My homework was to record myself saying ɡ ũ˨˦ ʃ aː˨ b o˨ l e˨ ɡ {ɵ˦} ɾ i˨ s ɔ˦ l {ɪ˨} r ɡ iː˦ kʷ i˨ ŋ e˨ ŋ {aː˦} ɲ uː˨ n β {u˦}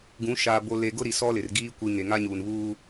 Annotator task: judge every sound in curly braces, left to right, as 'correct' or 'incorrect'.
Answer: incorrect: ʊ˦, correct, incorrect: a˦, incorrect: uː˦

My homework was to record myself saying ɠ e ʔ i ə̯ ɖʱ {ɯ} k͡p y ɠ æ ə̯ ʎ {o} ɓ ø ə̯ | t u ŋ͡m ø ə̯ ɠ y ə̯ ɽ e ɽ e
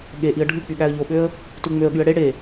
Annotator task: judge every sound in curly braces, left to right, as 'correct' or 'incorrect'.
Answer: correct, correct

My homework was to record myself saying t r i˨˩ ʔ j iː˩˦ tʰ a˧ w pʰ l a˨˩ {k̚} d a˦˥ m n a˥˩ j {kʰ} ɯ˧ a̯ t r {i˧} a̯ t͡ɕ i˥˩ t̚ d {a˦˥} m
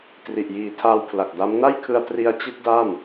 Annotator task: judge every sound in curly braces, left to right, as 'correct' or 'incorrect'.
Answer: correct, correct, correct, incorrect: a˥˩

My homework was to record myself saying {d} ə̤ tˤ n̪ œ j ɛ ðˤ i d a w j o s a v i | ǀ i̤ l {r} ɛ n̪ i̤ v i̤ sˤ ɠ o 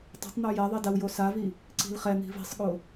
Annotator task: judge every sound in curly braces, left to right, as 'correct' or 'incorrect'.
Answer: incorrect: tˤ, incorrect: χ

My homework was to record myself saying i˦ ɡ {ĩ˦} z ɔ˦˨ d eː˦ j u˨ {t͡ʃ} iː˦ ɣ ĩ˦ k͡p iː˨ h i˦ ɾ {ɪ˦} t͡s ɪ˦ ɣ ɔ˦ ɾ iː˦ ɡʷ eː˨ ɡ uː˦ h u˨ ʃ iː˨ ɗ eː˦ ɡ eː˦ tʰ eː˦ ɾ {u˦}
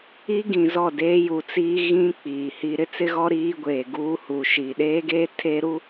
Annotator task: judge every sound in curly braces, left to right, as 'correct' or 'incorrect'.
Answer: incorrect: ĩ˨, incorrect: t͡s, correct, correct

